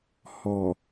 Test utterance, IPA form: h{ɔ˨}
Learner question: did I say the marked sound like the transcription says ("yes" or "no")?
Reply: yes